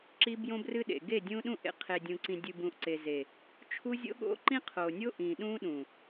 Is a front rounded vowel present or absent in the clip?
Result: absent